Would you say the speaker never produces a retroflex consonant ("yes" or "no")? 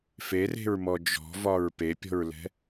yes